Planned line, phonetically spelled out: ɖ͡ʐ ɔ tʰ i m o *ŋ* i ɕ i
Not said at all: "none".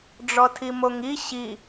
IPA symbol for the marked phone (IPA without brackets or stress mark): ŋ